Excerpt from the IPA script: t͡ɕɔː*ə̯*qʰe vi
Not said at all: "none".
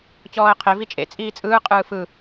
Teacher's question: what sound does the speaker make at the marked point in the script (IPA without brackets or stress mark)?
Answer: ə̯